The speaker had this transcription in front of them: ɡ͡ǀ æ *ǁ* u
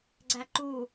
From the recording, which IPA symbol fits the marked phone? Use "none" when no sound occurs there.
ǃ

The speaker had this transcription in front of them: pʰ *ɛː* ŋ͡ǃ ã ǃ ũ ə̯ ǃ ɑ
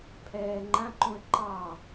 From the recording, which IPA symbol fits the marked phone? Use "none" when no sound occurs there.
ɛː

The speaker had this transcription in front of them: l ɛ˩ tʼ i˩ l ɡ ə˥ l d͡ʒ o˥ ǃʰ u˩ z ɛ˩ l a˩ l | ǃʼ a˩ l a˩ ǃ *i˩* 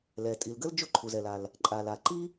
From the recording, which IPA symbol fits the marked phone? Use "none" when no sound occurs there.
i˥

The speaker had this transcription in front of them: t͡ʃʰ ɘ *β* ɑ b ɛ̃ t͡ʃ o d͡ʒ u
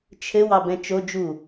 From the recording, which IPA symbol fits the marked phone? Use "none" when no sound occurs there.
w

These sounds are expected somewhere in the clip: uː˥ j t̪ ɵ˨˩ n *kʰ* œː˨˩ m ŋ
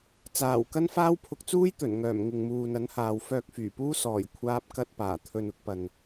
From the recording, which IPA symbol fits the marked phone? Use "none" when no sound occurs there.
ŋ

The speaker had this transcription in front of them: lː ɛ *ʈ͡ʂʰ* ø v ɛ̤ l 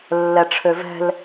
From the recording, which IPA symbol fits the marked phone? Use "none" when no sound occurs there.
ʈ͡ʂʰ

